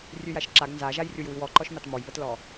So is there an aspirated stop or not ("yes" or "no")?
no